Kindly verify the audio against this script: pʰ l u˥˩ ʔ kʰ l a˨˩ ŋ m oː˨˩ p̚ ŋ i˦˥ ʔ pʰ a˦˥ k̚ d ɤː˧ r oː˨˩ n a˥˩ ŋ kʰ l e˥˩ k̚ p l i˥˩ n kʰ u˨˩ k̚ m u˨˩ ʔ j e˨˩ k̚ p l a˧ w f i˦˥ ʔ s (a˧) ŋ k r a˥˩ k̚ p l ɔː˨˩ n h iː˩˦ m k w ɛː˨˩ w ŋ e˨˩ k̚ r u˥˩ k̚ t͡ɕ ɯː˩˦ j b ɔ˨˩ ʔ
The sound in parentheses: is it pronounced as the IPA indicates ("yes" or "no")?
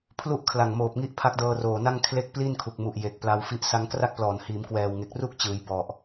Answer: no